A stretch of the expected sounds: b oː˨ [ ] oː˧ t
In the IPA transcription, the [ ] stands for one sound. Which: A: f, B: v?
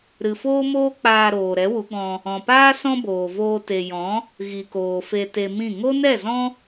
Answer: B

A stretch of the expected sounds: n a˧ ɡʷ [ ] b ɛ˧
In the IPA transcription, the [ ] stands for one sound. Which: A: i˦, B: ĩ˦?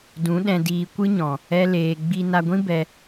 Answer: B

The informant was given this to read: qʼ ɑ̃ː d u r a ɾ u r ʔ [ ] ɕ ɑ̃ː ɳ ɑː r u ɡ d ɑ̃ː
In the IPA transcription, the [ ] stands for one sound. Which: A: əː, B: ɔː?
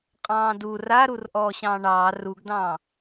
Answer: B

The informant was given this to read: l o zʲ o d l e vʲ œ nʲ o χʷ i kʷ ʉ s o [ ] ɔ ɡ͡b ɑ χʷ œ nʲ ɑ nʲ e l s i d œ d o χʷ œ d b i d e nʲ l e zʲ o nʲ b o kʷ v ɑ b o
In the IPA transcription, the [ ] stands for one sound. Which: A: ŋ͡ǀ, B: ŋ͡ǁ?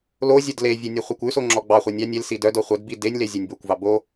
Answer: B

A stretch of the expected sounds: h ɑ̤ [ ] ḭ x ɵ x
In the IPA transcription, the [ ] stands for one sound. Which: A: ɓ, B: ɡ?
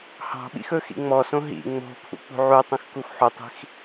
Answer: A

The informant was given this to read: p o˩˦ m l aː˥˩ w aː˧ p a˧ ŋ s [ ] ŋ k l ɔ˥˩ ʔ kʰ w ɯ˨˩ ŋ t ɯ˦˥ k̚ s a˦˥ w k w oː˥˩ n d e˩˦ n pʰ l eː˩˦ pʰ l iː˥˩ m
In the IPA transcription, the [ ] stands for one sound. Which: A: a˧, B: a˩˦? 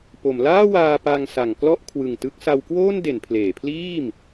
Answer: B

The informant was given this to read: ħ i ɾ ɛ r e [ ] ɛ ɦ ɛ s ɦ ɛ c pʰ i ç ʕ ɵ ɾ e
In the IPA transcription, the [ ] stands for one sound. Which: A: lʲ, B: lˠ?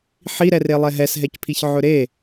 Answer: B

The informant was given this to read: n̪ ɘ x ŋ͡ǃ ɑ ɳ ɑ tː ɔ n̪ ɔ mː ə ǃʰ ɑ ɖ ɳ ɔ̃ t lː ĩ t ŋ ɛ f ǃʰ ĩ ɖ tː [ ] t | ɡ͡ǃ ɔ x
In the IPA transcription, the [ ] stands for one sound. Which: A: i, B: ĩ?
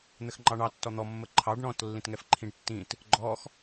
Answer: B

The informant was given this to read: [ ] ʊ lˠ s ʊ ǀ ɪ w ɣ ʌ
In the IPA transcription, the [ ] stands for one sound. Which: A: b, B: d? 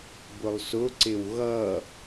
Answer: A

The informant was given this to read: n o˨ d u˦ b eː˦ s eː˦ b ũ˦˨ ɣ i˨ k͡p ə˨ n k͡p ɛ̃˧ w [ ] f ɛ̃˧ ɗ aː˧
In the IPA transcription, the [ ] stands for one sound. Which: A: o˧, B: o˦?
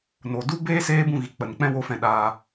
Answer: A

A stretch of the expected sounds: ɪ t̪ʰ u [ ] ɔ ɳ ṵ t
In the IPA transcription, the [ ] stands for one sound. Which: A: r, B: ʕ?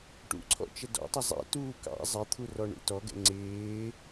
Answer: A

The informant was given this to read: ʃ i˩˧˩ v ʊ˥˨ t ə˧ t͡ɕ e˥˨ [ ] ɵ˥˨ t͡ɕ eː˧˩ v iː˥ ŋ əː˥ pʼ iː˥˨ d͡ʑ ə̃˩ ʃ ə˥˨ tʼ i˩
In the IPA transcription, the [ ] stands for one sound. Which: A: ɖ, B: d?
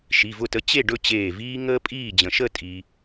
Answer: A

